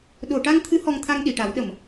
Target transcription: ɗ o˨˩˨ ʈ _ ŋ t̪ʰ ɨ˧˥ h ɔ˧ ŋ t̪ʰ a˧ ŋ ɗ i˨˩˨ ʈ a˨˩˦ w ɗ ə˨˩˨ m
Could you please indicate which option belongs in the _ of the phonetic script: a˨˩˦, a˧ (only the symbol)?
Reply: a˧